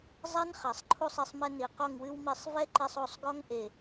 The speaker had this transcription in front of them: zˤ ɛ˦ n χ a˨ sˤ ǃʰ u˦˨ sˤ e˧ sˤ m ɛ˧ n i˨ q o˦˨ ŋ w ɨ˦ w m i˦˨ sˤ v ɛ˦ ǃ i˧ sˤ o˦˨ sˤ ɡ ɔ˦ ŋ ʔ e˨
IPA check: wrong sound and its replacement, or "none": none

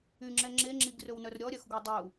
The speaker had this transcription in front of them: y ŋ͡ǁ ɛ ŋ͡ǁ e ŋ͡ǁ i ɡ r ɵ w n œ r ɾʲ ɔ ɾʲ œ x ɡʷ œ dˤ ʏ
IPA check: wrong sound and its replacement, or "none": ʏ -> u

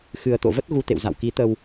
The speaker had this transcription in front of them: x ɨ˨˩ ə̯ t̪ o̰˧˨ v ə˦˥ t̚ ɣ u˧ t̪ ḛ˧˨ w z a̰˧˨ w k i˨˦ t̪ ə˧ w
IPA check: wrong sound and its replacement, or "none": none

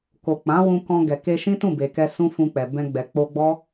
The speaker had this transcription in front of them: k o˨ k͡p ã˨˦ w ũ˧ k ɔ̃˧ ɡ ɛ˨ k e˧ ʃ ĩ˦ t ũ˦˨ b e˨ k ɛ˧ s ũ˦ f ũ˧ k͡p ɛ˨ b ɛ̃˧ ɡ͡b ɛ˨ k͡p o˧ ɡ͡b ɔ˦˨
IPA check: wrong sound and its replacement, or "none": ɔ˦˨ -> ɔ˦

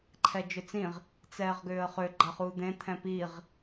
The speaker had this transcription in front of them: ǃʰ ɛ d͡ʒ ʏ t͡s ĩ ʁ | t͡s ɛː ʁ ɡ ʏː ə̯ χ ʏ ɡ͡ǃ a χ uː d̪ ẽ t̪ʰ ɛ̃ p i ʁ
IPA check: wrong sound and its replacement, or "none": none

